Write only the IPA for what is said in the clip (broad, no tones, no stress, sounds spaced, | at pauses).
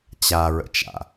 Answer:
t͡ɕ a ɹ ə̰ t͡ʃ a̰